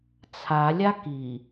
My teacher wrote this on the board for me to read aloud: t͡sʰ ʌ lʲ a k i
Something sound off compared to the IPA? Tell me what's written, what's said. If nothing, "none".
ʌ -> a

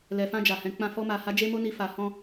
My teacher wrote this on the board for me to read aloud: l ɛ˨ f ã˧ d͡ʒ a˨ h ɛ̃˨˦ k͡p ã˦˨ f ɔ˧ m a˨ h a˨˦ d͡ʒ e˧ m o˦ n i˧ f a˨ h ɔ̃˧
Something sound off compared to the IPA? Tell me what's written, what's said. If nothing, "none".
none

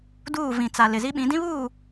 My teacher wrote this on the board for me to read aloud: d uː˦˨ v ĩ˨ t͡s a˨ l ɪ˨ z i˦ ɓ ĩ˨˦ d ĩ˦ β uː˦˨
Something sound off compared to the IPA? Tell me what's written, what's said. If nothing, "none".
none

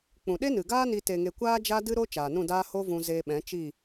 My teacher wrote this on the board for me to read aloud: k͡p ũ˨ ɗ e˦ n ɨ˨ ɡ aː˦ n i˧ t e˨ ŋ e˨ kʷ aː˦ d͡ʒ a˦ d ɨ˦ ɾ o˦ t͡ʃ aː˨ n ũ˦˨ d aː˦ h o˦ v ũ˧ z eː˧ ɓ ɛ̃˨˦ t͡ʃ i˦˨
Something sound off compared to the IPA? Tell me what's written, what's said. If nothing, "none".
none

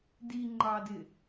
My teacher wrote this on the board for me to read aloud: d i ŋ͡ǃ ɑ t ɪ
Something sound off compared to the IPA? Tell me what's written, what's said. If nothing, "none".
t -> d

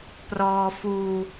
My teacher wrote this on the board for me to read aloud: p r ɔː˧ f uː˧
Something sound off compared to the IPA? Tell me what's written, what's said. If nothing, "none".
none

